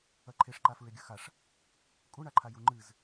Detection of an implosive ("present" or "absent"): absent